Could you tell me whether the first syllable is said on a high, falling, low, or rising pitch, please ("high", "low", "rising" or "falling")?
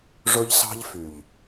high